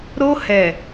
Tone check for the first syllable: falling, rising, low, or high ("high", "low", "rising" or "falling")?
high